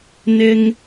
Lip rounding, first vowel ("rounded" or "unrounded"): unrounded